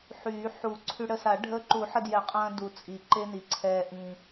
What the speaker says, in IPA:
ħyː˨˩˦ħu˨˩˦ǀʰy˧ ɽə˧sa˨˩˦ ɖʱə˧ ǃu˨˩˦ħə˧djɛ˨˩˦ qʼɐ̃ː˧du˩ t͡sʼi˩ǃe˧ni˩ ǀʰɛː˩ ʔĩ˩

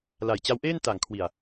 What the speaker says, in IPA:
la˨˩j t͡ɕa˦˥wʔeː˥˩n ta˨˩ŋkʰwi˨˩a̯

